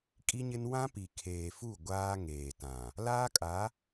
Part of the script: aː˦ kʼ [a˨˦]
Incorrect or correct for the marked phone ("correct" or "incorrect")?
correct